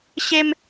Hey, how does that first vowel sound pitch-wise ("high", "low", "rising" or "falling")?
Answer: high